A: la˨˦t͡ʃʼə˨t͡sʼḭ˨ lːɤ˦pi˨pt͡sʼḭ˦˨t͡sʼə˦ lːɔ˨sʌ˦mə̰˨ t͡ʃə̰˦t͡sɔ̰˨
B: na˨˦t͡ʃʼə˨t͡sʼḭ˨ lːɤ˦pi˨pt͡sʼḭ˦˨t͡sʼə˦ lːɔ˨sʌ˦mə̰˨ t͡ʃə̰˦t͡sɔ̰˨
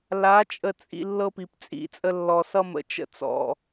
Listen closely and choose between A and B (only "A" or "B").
A